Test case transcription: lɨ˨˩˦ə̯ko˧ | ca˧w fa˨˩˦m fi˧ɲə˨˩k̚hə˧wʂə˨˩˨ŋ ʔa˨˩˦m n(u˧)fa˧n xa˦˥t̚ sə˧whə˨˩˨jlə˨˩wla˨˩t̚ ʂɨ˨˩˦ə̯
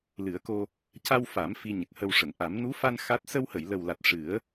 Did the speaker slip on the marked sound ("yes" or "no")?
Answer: yes